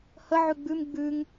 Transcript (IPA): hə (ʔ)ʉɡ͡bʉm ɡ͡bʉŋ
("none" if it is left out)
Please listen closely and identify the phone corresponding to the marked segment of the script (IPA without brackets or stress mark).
ʕ